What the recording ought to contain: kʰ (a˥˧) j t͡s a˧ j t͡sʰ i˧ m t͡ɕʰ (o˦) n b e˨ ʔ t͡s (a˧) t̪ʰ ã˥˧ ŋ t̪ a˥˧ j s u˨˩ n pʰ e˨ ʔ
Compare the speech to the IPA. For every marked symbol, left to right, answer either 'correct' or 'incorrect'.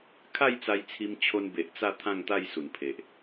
correct, incorrect: o˧, incorrect: a˥˧

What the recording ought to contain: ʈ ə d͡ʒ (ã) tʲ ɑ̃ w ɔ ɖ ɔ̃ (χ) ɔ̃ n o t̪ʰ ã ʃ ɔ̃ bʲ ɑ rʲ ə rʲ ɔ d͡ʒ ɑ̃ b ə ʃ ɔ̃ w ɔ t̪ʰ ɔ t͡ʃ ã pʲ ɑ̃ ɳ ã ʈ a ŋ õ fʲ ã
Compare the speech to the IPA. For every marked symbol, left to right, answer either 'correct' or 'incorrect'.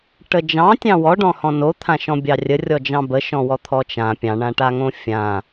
incorrect: ɑ̃, incorrect: h

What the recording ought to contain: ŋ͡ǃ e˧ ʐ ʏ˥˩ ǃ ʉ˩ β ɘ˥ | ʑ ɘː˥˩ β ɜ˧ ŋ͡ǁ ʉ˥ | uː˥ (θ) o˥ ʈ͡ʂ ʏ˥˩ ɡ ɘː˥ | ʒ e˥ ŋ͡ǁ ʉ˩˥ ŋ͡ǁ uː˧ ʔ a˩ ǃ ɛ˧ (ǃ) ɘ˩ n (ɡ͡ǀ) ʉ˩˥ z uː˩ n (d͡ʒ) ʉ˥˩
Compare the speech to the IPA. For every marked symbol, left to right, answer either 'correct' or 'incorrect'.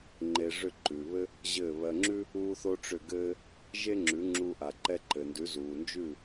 correct, correct, incorrect: d, correct

